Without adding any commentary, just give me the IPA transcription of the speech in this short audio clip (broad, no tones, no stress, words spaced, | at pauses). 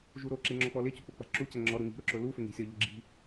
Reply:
ʒuɾoǁe ŋ͡ǁɔk͡pɔlɪcu k͡pʊk͡pa̤ǁucɛ ŋ͡ǁɔɾu ŋi̤ ɾʊǁʊlufɪ ŋi̤sʲɔʎɪ ɡ͡ǁi̤